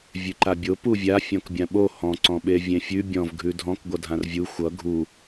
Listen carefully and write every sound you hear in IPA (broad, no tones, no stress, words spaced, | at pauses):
vʲʉǃabʲo puvʲa fʲɔ̃kbʲãɓo hɔ̃ ǀɔ̃ɓevʲẽfʲʉ bʲɔ̃v ɡʱʉdʱɔ̃k ɡʷʌdʱãrvʲu xʷʌ ɡʱu